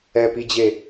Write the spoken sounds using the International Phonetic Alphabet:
ɛ p i d͡ʑ e

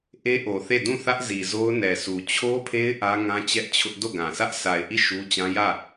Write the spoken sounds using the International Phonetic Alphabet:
ʔ e˦ ʔ o˨ θ e˦˨ d ũ˦˨ θ ä˦ ʔ z i˨ z o˦ ʊ̯ n ɛ˨ s u˨ t͡ɕʰ o˦ pʰ e˦ ɪ̯ ʔ ä˦ ŋ ã˦ t͡ɕ ɛ˦ ʔ t͡ɕʰ ʊ˦ ʔ d o˦˨ ɡ ã˨ s ä˦ ʔ sʰ a˨ ɪ̯ ʔ i˦˨ ʃ u˦ t͡ɕ ã˦ j ä˦˨

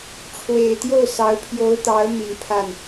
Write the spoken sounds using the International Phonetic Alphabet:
ʈ͡ʂʰ w e˨˩ ɪ̯ t̪ j o˥˩ ʊ̯ s ɑ˧˥ ʊ̯ pʰ j o˧˥ ʊ̯ t̪ ɑ˧˥ ʊ̯ m i˨˩ n pʰ a˥˩ n

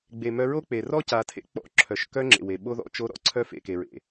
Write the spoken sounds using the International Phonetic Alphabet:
ɡ͡b e˨ m œ˧ ɹ o˦ k͡p e˨ r ɔ˦ c a˨ tʰ ḛ˦ k͡p ɔ̰˧ ǁʰ œ˨ ʃ k œ˦ ŋ͡ǁ ḛ˨ w e˨ ɓ o˦ ð ɔ̰˨˦ t͡ʃ o˦ ɾ ɔ̰˧ ǀʰ œ˦ f ḛ˨ k e˨ ɹ ḛ˨

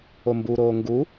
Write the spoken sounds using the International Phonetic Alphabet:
o m b u ɾ oː ŋ ɡ u

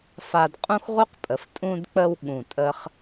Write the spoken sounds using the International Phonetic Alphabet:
f a˧ d qʼ ũ˥ x ʁ u˥ q pʼ ə˩˧ f tʼ ũ˧ d k͡p ə˧ w ɠ ũ˧˩ tʼ ə˥ χ

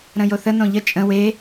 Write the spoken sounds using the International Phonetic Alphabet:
ɾ ə̃ j o θ ə n õ ʎ ə t͡ʃʼ ə̃ w e

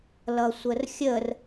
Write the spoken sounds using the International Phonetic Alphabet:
l ʌ sʷ ə r xʲ ə r

